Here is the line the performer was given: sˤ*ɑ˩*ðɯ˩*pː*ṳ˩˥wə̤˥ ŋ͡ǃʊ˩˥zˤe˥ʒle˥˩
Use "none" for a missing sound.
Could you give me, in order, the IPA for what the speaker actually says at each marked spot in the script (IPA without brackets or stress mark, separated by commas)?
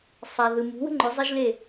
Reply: a˩, m